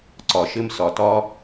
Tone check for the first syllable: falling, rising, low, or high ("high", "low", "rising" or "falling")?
low